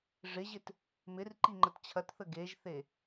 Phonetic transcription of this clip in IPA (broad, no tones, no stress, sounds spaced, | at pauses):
ʐ ɪ ʑ ɪ t | m ɪ r ǃ i ŋ͡ǃ ə t t͡ɕʰ ɐ t θ ə ɡ e ʒ θ e